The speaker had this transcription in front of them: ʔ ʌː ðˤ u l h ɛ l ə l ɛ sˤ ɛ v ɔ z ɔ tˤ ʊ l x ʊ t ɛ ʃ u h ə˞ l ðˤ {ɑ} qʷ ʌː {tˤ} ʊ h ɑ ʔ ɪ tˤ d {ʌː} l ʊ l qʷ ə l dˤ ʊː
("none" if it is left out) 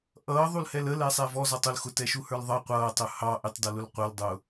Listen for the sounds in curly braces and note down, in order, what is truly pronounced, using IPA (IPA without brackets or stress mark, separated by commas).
ʌ, tˤ, ʌ